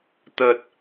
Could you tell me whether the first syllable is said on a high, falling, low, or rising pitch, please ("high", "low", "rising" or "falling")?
low